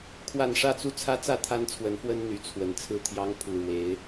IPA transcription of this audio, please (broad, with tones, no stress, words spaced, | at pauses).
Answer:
kʰwa˥˨n ʂä˥˨t͡su˦t͡sʰä˦t͡sä˥˨ t̪ʰa˦nt͡sʰwə˨˦nfwə˦n n̪y˨˦t͡sʰwə˨˩n t͡sʰɹ̩˥˨t̪ʰjɑ˦ŋ pʰu˨˩ɻwe˨˦ɪ̯